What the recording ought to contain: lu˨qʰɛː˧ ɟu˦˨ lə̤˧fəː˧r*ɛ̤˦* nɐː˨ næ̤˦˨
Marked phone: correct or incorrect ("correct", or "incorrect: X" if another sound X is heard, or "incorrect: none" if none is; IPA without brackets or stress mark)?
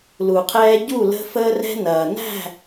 incorrect: ɛ̤˧